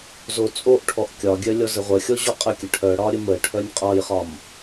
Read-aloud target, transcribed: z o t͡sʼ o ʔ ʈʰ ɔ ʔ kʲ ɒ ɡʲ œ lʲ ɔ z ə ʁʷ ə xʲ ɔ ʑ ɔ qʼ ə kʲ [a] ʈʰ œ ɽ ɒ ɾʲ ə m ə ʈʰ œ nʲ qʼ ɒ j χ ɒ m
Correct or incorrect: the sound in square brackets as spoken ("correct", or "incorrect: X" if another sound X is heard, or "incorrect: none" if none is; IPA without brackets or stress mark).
incorrect: ə